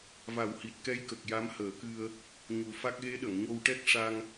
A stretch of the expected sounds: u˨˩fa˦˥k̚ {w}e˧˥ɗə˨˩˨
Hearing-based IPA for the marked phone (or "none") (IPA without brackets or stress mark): ɣ